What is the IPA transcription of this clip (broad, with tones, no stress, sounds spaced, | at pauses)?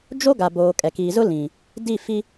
d͡ʒ o˦ ɡ a˨ b oː˨ kʼ ɛ˨ k iː˨ z ʊ˦ l ĩ˨ | d i˦˨ f i˦